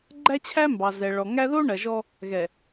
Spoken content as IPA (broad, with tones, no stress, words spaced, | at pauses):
ɡ͡ǃæ˦t͡ɕʰæ˦ mbɑ˨zɛ˨ ɭɔ˨ŋæ˦ ðo˦ ɳɐ˨ʒɔ˦ | ɣɛ˨